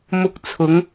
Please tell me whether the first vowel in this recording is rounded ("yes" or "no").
yes